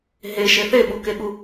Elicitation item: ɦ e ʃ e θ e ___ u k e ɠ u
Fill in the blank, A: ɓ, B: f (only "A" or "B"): A